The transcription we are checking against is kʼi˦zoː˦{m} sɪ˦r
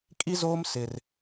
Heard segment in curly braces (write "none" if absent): m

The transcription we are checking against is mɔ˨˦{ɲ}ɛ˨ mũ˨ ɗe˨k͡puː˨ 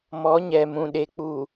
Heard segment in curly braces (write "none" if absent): ɲ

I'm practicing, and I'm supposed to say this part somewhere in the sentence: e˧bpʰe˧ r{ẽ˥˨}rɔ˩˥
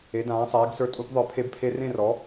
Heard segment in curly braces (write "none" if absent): ẽ˥˨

